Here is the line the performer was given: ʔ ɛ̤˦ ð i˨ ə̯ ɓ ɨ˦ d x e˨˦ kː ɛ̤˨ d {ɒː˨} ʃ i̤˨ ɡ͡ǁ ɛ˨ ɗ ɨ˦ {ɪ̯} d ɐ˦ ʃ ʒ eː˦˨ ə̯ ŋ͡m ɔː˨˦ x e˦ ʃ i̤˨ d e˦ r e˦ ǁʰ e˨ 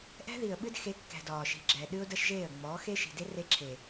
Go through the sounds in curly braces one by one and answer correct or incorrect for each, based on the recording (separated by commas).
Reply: correct, incorrect